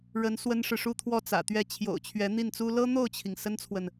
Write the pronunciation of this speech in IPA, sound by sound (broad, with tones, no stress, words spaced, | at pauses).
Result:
ɻə˧˥n swə˥nʂɻ̩˨ ʂu˥˧t̪ʰwɔ˥˩ t͡sä̰˨˩t̪ɥɛ˥˩ t͡ɕʰjo̰˨˩ʊ̯t͡ɕʰɥɛ˧˥n̪i˥˩nt͡su˥ lɤ˥n̪o˥˩ʊ̯t͡ɕʰi˩ŋ sə˥nt͡sʰwə˨n